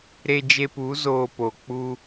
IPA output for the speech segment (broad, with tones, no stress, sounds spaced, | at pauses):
ɾ e˧ d͡ʒ e˧ p u˨˦ z oː˧ p o˨ k͡p u˦